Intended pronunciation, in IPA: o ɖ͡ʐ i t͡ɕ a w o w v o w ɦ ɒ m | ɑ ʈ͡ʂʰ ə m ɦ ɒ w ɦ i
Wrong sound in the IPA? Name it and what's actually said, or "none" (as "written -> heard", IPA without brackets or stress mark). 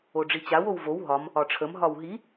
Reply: ɑ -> ɒ